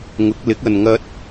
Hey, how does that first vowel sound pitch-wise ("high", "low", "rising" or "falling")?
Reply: rising